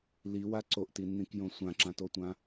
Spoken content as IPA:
liwa ǀoʔtinːĩkjõ sʷãǁãtotʷã

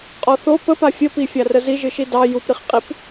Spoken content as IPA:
qʼɔθo pəpa fʲəpifʲarə ziʒɨʃi dɑ jupɾiχqʼip

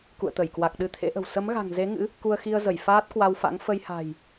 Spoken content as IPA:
kṵ˧˨ə̯t̪ə˧˩jkwa˨˩k̚ ɗɨ˧t̪ʰḛ˧˥ʔə̤˨˩w sə˨˦mɣa̤˨˩ŋze˨˦ŋɨ̰˧˥ | ku˧ə̯xi˧ə̯zə˧˩j faː˦˥t̚kwa˧wfa̰˧˥ŋ fə˧jha̤˨˩j

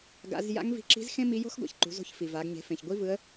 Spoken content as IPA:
ɡa̰˩˧zja̰˧˥ŋvi̤˧ǁi̤˧˥z xẽ˥mi˧˥jo̤˥xɡʷa̰˩ç ǃṳ˩˧zo̤˧çfi˩va˩˧ɡ ɲe̤˩˧fẽ˩çɡʷi˧˥ vɯ˧˥ə̯

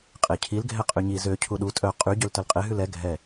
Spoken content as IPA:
qʼecʰil ɡʱɛqʼyɲi zø cʰuɗu tʼœ qʼy ɟøltœlqʼe ɦʉlɛ ɡʱɛ

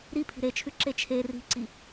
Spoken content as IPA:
ɾipʰi̤ ɾet͡ʃʰʉǁe t͡ʃʰe ri̤ǀi

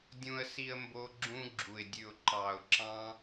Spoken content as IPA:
dʲũ˦ə̯si˦ə̯ mbo˧ ɡ͡ǁũ˧ɡ͡ǁu˨ɪ̯dʲʉ˨ʊ̯ ǃɑ˨ʊ̯ǁɑ̃˧

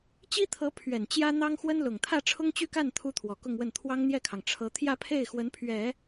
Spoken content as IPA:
t͡ɕi˥t̪ʰɤ˧˥ pʰɥɛ˨˩nt͡ɕjä˥ n̪ɑ˥ŋxwə˥nlʊ˨˩ŋ t̪ʰä˥˩ʈ͡ʂʰʊ˥ŋt͡ɕy˥˧ka˥˩n t̪ʰu˥t̪ʰwɔ˨˩kʊ˥˧ŋwə˥˩n t̪ʰwɑ˥ŋn̪jɛ˥˩kʰɑ˩ŋ ʈ͡ʂʰɤ˧˥ t̪ʰjä˥˧pʰe˥˩ɪ̯ xwə˧˥npʰɥɛ˨˩˦

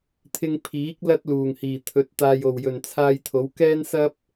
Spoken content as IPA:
t̪ʰɪ˧ŋ pʰiː˨˥k̚ lɐ˥t̚luː˨˩ŋhiː˨˩t̪ʰɵ˨˥t̚ t̪aː˨jo˨˩wjɵ˨˩n t͡sʰaː˧jt̪ʰo˨˥wkɛː˥n sɐ˥p̚

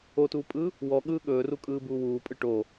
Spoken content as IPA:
otuːpʼɯː | wɔɠɯː ɠɵː rukʼɯːbuːwuː pʼɯʈoː

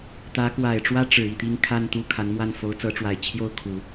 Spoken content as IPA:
t̪ä˧˥kwa˨˩ɪ̯ʈ͡ʂwä˥ ʈ͡ʂɻ̩˨˩i˥˩t̪i˥ŋ kʰa˥˧nt̪u˥˩ kʰa˧˥nmwa˥˩n fo˧˥ʊ̯t͡sɤ˧˥ʈ͡ʂwa˨˩ɪ̯ t͡ɕʰjo˥˩ʊ̯kʰu˨˩˦

